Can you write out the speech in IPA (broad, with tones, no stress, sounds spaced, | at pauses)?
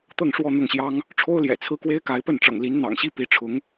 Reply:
t̪ ɤ˥˧ ŋ ʂ w ɔ˥˧ n̪ ʊ˥˩ ŋ ɕ j ɑ˥ ŋ | ʈ͡ʂʰ o˥ ʊ̯ l j ɛ̰˨˩ t͡sʰ ɹ̩˥ k w e˥ ɪ̯ k a˧˥ ɪ̯ p ə˥˩ n ʈ͡ʂ ɤ̰˨˩ ŋ l i˧˥ n n̪ ɑ̰˨˩ ŋ ɕ i˥ p i˧˥ ʈ͡ʂʰ ʊ˧˥ ŋ